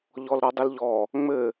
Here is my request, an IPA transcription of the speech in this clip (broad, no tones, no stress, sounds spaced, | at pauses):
ʎ ɔ l ɾ ɔ dˤ ɘ l ʎ ɔ | ŋ͡m ɘ